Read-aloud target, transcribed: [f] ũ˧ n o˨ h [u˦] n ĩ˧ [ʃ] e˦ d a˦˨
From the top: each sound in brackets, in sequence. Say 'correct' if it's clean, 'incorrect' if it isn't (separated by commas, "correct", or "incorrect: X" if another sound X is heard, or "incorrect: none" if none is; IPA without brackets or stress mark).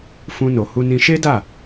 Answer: correct, incorrect: u˧, correct